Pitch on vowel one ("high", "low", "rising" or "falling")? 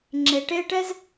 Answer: low